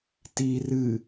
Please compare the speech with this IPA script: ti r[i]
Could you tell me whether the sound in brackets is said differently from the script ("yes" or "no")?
yes